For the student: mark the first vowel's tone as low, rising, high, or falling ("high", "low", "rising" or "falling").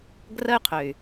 high